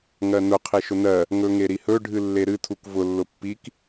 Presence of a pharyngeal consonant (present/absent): absent